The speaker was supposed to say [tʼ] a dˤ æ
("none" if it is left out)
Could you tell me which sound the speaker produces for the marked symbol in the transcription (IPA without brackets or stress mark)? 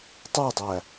tˤ